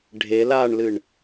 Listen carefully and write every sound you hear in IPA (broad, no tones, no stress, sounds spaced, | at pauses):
ɖʱ e l a ɳ l ɨ ɳ